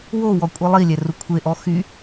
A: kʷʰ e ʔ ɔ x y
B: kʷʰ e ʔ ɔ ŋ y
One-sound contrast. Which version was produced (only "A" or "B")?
A